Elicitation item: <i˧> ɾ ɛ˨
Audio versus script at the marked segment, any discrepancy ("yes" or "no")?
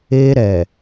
yes